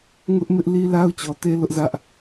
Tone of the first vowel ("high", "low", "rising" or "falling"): high